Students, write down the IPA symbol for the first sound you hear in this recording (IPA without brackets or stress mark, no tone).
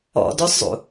ɔ̰